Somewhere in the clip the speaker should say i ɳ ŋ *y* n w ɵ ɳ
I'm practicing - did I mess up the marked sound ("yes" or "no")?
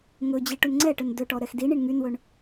no